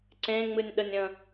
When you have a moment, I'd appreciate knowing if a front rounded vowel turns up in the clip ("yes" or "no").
no